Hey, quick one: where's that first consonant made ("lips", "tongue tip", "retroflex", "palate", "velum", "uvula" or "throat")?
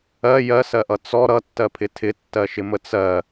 palate